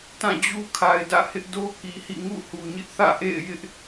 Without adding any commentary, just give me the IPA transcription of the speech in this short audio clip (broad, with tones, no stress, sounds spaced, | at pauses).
t ã˦˨ d͡ʑ u˦ kʰ a˨ ɪ̯ d ä̰˦˨ h ɪ˦ ʔ d o˦ k i˨ h ḭ˦˨ ŋ ṵ˦˨ h u˨ ɲ ɪ˦ ʔ θ ä̰˦˨ ʔ ḛ˦˨ ɪ̯ j ɪ˦ ʔ